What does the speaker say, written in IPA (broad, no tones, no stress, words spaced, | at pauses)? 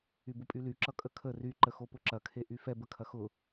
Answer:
ybʊpʼyly ǁʌkʼəkʰə ry ǃəxopʊǁɐ kʰeʔyfɛ bəkʰɐxʊ